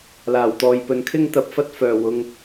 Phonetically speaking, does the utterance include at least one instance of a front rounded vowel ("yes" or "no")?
yes